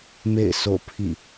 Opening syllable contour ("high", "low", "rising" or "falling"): falling